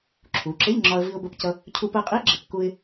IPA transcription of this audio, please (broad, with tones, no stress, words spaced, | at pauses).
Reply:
ǁʰu˩˧ǁɪ˧˥˧ʎŋ͡ǁɒ˧ə̯ vi˧ʊ̯bə˧pcʌ˧ | cʰu˧pɜ˧qʼi˧˥ɡ͡ǁɪ˩˧p ku˧ɪ̯